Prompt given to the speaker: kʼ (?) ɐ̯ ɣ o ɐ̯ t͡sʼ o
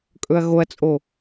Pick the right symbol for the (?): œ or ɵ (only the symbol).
ɵ